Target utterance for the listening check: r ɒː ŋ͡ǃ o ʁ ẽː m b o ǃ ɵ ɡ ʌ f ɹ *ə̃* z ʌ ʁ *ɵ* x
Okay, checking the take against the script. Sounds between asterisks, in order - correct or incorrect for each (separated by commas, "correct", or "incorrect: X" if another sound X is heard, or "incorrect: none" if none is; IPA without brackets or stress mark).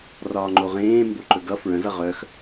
correct, incorrect: œ